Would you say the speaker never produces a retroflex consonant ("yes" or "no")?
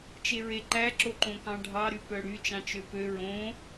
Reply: no